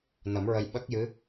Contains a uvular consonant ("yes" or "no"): no